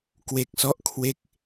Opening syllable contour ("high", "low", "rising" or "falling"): low